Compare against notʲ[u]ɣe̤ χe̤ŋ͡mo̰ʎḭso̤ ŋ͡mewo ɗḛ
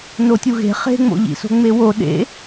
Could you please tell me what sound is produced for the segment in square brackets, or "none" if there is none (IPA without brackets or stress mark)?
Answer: u